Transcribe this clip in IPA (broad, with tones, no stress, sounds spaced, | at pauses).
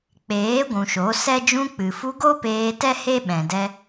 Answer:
k͡p eː˨˦ ɡʷ ũ˨ ʃ o˨˦ s ɛ˦ d͡ʒ ũ˧ k͡p ɨ˨ f u˧ ɡ o˦ p eː˧ t ɛ˦ h e˦ ɓ ɛ̃˨ d ɛ˧